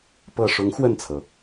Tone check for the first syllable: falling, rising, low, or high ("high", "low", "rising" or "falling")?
low